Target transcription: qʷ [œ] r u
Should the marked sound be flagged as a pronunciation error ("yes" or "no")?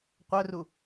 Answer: no